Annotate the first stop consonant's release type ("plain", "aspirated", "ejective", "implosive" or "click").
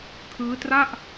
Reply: aspirated